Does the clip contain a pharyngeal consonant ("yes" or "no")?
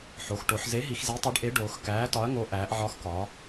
yes